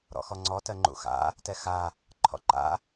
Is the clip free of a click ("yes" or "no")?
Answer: no